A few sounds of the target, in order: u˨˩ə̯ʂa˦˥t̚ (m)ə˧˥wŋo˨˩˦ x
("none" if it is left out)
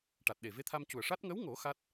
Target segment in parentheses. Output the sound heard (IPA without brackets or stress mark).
ŋ